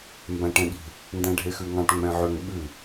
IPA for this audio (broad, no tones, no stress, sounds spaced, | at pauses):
m b æ̃ ʈ ɛ̃ ɠ i̤ | n d æ̃ ɖʱ e x ʉ ŋ ɑ̃ ʈ ŋ͡m ɛ̃ ʕ ø ŋ ɓ ʉ